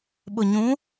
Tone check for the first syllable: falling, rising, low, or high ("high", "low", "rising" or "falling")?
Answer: low